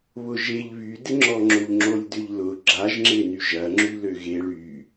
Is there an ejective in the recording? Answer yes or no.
no